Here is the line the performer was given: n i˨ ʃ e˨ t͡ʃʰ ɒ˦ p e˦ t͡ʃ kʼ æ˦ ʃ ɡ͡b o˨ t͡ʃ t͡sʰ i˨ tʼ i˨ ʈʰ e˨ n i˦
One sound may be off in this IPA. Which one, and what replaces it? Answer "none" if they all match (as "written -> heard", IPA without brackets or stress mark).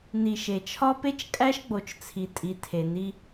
ʈʰ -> tʰ